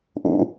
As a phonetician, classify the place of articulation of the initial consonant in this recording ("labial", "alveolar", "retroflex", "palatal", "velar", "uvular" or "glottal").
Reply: glottal